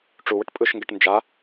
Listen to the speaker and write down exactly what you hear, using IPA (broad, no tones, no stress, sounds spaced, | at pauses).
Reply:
ʈ͡ʂ u w ə ʈ pʼ ɯ ʃ ŋ ɡ ɛ ʈ n d͡ʒ a